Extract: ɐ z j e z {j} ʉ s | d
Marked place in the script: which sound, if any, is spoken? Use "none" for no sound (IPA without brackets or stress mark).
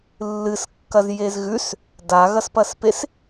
ɣ